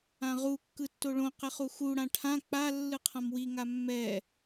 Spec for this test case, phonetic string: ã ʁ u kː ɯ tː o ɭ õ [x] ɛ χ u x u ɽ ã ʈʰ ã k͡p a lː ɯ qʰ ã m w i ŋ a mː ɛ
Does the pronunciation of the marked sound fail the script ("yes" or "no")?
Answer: yes